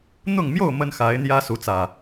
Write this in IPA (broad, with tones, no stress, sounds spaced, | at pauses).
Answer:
n̪ ʊ˥˨ ŋ m j o˥˨ ʊ̯ m ə˦ n x a˨˦ ɪ̯ n̪ j ä˦ s u˨˦ t͡s ä˨˩